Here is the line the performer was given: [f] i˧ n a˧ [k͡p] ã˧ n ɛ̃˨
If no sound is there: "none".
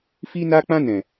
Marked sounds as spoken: f, k͡p

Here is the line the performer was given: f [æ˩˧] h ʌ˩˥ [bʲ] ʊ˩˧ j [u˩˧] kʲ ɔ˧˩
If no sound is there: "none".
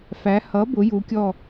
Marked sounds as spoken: æ˩˧, b, u˩˧

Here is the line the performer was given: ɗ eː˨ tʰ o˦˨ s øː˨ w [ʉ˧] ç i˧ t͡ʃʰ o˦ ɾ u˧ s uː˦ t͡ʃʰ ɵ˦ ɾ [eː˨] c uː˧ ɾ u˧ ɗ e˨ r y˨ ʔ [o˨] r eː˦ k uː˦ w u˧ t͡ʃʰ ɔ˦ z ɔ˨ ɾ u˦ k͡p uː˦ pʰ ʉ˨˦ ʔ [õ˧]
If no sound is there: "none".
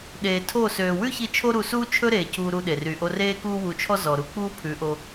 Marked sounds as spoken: ʉ˦, eː˨, o˧, o˧

